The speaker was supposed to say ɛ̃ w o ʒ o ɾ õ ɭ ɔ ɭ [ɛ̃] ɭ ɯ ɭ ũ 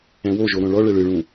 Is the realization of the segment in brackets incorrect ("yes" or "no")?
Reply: yes